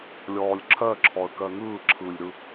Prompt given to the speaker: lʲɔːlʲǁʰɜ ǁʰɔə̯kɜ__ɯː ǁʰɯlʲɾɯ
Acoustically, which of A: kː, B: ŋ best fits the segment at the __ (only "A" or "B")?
B